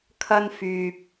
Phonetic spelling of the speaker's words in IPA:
kʰɐ˧nfyː˨p̚

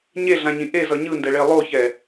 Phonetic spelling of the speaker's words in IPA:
ɲeɮãɲĩ ʔezʌ ɲɯndɛɭe lˠoçɛ

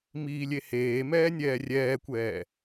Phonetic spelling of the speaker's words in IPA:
miːlʲeheːmɛː nʲɛːrʲɛːkʷɛː

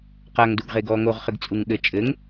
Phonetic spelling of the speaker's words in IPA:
qaŋduɡ ʁeɡɔːŋoʁχɘɡ t͡sʼuŋɠɘ t͡ʃʼɘŋ

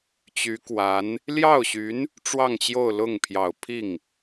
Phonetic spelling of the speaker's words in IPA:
t͡ɕy˧˥kwa˧˥n | ljɑ˥˩ʊ̯ɕy˧˥n | ʈ͡ʂwɑ˥˧ŋt͡ɕjo˥˧ʊ̯lʊ˥˩ŋ pʰjɑ˨˩ʊ̯ pʰi˥˩ŋ

